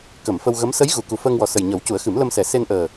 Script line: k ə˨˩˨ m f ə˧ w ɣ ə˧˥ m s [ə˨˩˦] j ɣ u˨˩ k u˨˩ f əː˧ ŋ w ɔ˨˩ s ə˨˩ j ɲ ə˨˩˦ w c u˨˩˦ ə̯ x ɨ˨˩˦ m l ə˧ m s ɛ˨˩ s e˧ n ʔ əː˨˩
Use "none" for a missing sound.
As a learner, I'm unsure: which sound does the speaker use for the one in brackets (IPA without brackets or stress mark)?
ə˧˥